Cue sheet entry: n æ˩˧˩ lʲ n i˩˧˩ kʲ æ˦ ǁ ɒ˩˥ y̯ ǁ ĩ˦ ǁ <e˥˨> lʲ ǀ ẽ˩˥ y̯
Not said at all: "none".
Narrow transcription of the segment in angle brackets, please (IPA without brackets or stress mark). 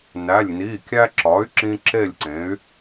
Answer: e˥˨